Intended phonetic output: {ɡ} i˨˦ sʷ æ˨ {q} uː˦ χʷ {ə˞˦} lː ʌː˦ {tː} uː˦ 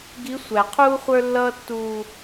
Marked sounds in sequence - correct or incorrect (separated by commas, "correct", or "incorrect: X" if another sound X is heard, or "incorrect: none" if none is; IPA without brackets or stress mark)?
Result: correct, incorrect: qʰ, correct, correct